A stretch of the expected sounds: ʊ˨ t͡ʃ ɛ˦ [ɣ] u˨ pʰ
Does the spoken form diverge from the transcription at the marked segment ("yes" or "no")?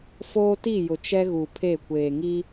no